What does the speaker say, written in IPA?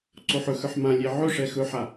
ǀ o ħ ɵ x ə˞ ħ m ã lʲ e ʕ ɵ ʂ ɛ x ɵ ħ a

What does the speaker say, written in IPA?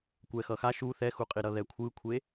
kʷ ɛ x ʌ x a ʃ u θ ɛ x u qʼ i ɾ ʌ ð ɛ kʷʰ ɯ kʷʰ e

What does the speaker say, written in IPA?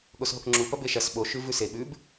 ɠ o s ɦ o k ŋ͡ǁ u p ɐ b e ʃ ɐ s ɓ o ʃ ʉ v ʉ s e ɓ ʉ b

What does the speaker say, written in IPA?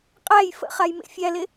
qʼ æ j f ə̰ χ a j m ḛ fʲ æ l e

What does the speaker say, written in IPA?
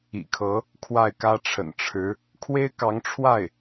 ḭ˨˩ kʰ ɤ˧˥ | kʰ w a˥˩ ɪ̯ k ä˥ ʈ͡ʂʰ ə̰˨˩ n ʈ͡ʂʰ ɻ̩˧˥ | kʰ w e˥ ɪ̯ k ɑ˧˥ ŋ ʈ͡ʂʰ w a˥˩ ɪ̯

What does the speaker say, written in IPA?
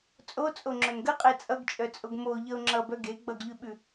t͡sʼ o t͡sʼ o ŋ͡ǁ œ n ɡ ə qʼ e t͡sʼ ʌ ɡ t͡ʃʼ œ t͡sʼ o ɡ m o ʎ ʌ ʊ̯ ŋ͡ǁ ʌ b œ ɡ e ɡ͡b ʌ ɡ ʎ ʉ ɓ ʉ

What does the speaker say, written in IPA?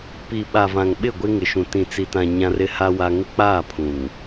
p i˨ ɓ a˨ v ã˨ ŋ ɓ ɪ˦˨ ɡʷ e˦ ŋ ɪ˨ ʃ ũ˨ t ĩ˨ t͡s i˨ t ã˨ ɲ ã˦ r ɪ˦ h a˦ w a˦ ŋ ɪ˦ k͡p aː˦˨ pʰ ũ˨ ŋ

